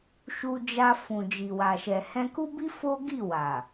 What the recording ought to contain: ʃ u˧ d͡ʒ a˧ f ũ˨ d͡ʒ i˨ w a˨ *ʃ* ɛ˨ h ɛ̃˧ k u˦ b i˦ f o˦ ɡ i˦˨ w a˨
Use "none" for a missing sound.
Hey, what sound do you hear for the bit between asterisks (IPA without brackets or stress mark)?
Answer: ʃ